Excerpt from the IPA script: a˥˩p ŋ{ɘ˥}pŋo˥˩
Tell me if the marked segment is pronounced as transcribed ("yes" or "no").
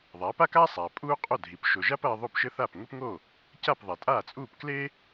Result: yes